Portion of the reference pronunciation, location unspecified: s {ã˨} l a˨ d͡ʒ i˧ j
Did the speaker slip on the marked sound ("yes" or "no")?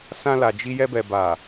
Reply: yes